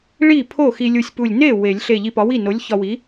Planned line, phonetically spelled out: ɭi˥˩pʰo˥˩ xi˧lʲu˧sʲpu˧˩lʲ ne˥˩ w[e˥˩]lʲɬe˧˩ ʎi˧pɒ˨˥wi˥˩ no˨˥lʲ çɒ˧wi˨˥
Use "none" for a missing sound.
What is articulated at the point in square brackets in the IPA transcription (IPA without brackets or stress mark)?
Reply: e˨˩˦